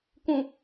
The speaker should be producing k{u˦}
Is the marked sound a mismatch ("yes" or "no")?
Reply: yes